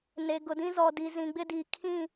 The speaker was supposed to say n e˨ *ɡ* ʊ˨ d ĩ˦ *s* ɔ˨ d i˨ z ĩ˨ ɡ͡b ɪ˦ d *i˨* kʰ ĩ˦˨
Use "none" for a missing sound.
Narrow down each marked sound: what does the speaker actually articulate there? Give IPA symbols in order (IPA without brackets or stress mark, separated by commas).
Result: ɡ, z, i˨